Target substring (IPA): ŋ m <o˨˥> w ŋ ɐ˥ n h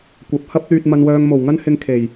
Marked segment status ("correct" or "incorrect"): incorrect